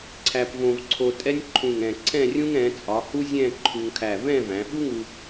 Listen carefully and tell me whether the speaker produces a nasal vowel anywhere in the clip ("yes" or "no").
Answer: yes